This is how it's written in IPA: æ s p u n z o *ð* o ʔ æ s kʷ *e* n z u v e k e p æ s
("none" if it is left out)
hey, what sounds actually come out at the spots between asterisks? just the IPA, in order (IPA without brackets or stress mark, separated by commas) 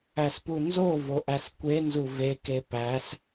v, e